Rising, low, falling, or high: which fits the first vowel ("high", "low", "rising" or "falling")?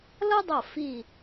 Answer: high